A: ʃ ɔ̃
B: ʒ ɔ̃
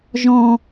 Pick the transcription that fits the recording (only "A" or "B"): B